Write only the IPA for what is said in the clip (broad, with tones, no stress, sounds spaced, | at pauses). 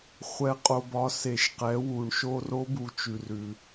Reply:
χʷ ɛ˩ qʼ o˩ b ɒ˩˧ s e˩ ʃ q ɛ˩˧ w u˩ ɳ ʃ o˧ r o˧˥ b u˩˧ t͡ʃ ʉ˩ r ʉ˩